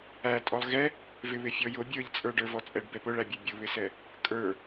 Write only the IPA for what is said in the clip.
æ tʼ ɔ lˠ ɣ ɛ | v ɪ β ɪ fʲ ɔ j ʊ bʲ ə˞ ʎ t͡sʼ ə˞ ɖ ə˞ v ɔ t͡sʼ ɛ ɖ b ɛ p ʊ ɭ æ bʲ ɛ bʲ ʊ β ɪ s ɛ | kʼ ə˞

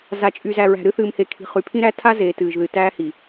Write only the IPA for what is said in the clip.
z a˨ t͡ʃʼ y˨ z æ˨ ɹ æ̤˨ ɾ ɨ˦ θ ɨː˨ m h e˨ kʰ i̤˨ χ y˨ pʰ ĩ˦ ɾ æ˦ tʰ a˦ z eː˨ t ɨː˨ ʒ ð ɨ˨ t æː˦ h i˨

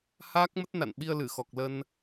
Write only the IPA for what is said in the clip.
h aː˦˥ k̚ m ə˦˥ t̚ n a̰˧˨ n ɓ i˧ ə̯ l ɨ˧˩ x ɔ˨˩ k̚ l ə˧ n

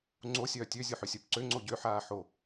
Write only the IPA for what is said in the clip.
ŋ͡ǀ o sʲ œː tʲ ø zʲ o ħ ø sʲ œ p ǀ ø ŋ͡ǀ o ɟ ø ħ aː ħ o

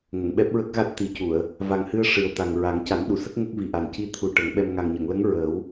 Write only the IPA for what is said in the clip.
ŋ ə˨˩˨ ŋ ɓ ɛ˦˥ p̚ ɹ ə˦˥ k̚ ɣ a˦˥ t̚ t̪ i˨˩˦ c u˨˩˨ ə̯ | v a˨˩ ŋ h ɨ˧ ə̯ ʂ ɨ˨˩ ə̯ t̪ a˨˩ ŋ ɹ a˨˩˦ ŋ c a˨˩˦ n ɗ u˨˩˨ s ə˦˥ k̚ ŋ ə˦˥ k̚ v i˨˩ ʔ a˨˩ n c i˧ t̪ʰ u˨˩ ʈ ə˨˩˦ ŋ ɓ ɛ˧ m ŋ a˨˩ ŋ ɲ ə˨˩˨ ŋ l ə˧˥ ŋ ɹ əː˨˩˦ w

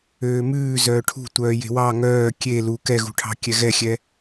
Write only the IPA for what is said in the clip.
øː m ʉː z œː ʈʰ ṳ tʷ œː j e̤ w ɑ ŋ œː kʲ e l u k ɛ ɣ ṳ ʈʰ ɑ̤ kʲ ɛ ɣ ɛ xʲ ɛ

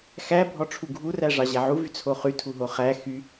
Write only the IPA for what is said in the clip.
x æ bʱ ɔ ʈ͡ʂʰ u ɡʱ u r æ ʐ ɑ ʑ æ ʕ u v y t͡sʰ o χ y tʰ u ɦ o χ æ x y

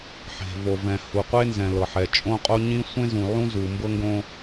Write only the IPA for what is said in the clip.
ħ e̤˨ v o˨ v ɛ̃˨ h u˨ qʷ e˦ n z ɛ̃˨ l ɤ˨ ħ ɛ˨ t͡ʃʼ õ˦ qʼ o˦ ɲ ĩ˦ sʷ ẽ˦ z ũ˨ ʕ ũ˦ z u˨ m b ɤ˦ ŋ ɡ õ˦

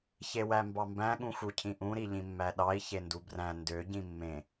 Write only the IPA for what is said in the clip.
ç e w æ m b ɑ m b æ̃ ɠ ũ x u cʰ ĩ ʔ ũ ɾ i ʎ ĩ mː æ ɗ ɑ i̯ ç e n d u b r æ̃ n d ø ɟ ĩ mː ẽ

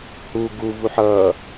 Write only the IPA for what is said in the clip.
h u ɡ u v u ħ ʌː

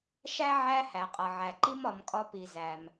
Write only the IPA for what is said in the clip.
ʃ æ˥ ʕ æ˧ h æ˩ qʼ ʌ˩ ʕ æ˩ ǃ i˧ m ɒ˩ m kʼ ɒ˧ p i˩ z æ˩ m

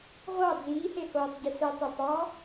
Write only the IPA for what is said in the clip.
ʁʷ ɑ d͡z iː h e h oː tˤ ɟ i s ɯ tˤ ø p ɑ

